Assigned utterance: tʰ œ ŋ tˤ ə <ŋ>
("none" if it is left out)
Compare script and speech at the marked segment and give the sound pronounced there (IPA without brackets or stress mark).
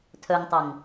ŋ